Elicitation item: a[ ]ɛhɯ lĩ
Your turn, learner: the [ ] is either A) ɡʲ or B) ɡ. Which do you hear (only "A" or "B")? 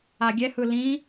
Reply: A